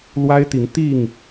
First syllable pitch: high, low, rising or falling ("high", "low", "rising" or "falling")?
high